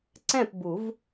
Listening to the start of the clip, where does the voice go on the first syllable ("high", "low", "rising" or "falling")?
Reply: falling